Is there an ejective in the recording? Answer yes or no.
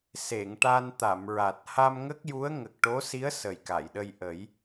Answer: no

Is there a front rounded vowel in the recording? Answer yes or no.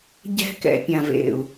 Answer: no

